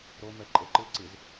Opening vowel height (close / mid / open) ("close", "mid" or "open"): mid